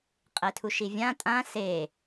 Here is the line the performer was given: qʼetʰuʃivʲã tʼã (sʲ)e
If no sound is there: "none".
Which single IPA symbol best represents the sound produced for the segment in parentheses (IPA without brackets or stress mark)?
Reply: s